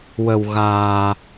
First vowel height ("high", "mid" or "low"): mid